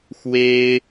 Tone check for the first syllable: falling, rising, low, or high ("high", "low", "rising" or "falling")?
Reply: high